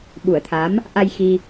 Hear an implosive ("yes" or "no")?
yes